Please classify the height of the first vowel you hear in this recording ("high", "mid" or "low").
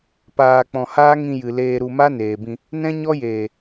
low